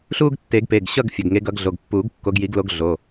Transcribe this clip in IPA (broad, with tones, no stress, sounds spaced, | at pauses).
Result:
ɬ u˥˧ ɡ tː e˨˩˦ ɡ p e˩˧˩ ɡ ɕ ʌ˥˧ ɡ fʲ ʌ˩˧˩ ɡ ŋ e˨˦ ɡ ʌ˨˩˦ ɡ ɮ o˩˧˩ ɡ pː u˨˩˦ ɡ kː o˨˦ ɡ j i˨˩˦ ɡ l o˨˦ ɡ ɮ o˩˧˩